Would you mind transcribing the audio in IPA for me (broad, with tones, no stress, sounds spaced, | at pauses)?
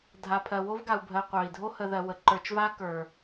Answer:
dʱ a˨ pʰ ɜ˨ w o˥ v ɡ a˨ u̯ bʱ ɜ˨ qʷ œ˩ i̯ dʱ o˥ h ə˨ ð ɜ˨ w ə˩ ǃ ə˞˨ t͡ʃ v a˦ k ə˞˩